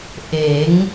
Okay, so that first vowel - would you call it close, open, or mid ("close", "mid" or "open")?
mid